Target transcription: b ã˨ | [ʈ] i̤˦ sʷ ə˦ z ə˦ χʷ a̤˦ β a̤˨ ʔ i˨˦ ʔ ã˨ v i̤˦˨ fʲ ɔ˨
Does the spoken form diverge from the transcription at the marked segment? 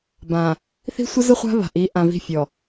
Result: yes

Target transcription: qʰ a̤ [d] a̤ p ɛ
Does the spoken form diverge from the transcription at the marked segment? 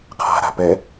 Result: yes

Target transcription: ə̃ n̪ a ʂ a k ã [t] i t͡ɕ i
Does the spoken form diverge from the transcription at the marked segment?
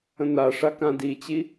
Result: yes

